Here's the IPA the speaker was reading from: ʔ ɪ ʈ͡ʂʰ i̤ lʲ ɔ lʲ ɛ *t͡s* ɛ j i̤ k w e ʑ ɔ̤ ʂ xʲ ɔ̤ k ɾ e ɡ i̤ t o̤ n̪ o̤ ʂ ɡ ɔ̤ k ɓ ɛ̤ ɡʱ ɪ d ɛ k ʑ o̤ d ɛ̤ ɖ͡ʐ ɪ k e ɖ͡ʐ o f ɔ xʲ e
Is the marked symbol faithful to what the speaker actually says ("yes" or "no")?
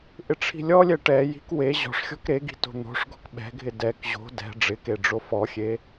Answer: no